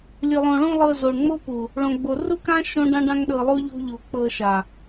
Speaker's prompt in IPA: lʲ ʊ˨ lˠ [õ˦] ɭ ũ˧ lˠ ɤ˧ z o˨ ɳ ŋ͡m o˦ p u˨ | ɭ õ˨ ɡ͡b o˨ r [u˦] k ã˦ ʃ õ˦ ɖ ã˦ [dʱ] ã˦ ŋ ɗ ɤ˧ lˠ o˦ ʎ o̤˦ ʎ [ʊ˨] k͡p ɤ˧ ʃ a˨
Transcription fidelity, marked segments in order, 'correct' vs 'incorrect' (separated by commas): incorrect, correct, incorrect, incorrect